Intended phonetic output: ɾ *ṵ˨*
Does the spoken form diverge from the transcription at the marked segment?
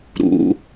no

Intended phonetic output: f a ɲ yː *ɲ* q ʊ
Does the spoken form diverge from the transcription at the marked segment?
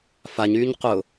no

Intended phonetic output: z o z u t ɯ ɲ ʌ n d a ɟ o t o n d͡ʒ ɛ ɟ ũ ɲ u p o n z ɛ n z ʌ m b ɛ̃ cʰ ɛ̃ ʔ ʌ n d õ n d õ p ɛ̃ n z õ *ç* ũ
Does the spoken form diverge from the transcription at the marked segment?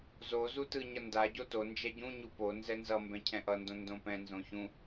no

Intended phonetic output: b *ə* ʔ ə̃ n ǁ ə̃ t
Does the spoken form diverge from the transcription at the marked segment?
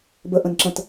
no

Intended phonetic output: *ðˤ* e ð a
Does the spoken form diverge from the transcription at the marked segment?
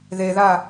yes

